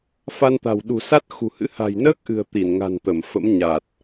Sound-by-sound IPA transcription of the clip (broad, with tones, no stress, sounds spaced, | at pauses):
f a˧ n t̪ a̤˨˩ w ɗ ṳ˨˩ s a˦˥ t̚ x ṳ˨˩ h ɨ̰˧˥ h a̤˨˩ j n əː˦˥ k̚ ʔ ɨ̤˨˩ ə̯ t̪ i˧˩ n ŋ a̤˨˩ n t̪ ə˧˩ m f ə̰˧˥ m ɲ a˨˩ t̚